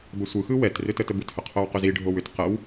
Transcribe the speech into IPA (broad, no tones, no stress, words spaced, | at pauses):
bəsʷɯxɯ wɛtrʏ tətəbɯthʏ qʰowqʏziɖʱow ʏt qəw